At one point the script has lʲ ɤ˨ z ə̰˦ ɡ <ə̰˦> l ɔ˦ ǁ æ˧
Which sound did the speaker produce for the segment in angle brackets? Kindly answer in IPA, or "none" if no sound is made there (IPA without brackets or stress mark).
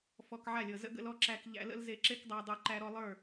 ə̰˦